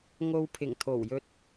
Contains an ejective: no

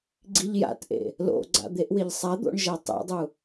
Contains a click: yes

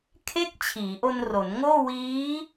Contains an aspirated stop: yes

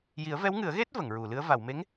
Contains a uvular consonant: no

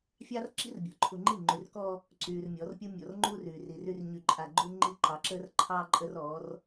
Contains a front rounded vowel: yes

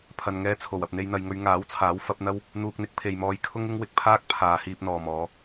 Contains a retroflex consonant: no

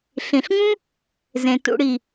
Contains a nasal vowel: yes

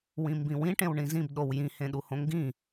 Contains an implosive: yes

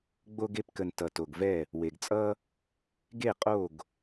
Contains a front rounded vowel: no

